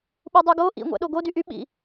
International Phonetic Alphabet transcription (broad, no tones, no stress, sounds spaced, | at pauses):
ɓ u dˤ u ɡ o ʔ ḭ ŋʷ æ̰ ɗ o ɡ o d y ʔ y ɓ ḭ